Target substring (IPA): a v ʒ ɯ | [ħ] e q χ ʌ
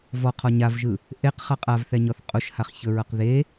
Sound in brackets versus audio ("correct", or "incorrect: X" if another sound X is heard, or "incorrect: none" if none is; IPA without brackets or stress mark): incorrect: ʔ